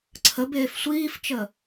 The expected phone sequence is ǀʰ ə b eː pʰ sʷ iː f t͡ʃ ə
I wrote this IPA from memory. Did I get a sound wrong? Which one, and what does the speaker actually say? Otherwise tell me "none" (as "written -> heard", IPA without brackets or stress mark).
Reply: pʰ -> f